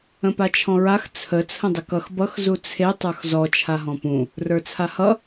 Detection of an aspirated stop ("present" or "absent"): present